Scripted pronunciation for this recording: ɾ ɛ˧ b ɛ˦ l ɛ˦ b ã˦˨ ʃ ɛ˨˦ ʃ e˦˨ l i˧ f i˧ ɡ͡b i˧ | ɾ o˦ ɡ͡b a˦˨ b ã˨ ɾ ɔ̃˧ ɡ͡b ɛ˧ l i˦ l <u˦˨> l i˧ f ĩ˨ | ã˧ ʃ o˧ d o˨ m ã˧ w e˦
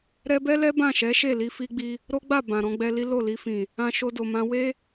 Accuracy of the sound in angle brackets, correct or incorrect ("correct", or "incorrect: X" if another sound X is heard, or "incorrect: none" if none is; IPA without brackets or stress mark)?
incorrect: o˦˨